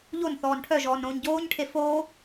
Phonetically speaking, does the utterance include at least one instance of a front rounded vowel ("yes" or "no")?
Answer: yes